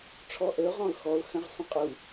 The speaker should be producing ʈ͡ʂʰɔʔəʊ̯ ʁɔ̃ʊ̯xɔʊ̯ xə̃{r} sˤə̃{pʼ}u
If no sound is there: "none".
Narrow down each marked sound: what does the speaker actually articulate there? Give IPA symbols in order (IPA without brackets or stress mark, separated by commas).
ʁ, qʼ